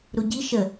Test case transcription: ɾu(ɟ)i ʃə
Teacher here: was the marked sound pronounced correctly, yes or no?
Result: yes